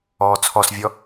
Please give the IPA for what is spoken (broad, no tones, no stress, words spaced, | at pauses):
ɔːt͡sʰɔsvʲɔ